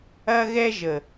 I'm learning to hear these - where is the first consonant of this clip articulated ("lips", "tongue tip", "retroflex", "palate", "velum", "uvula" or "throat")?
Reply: velum